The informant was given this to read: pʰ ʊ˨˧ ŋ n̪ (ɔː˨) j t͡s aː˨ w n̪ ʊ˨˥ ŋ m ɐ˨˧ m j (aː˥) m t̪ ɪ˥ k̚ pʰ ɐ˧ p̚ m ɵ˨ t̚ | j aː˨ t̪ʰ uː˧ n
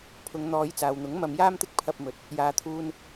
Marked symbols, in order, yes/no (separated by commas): no, yes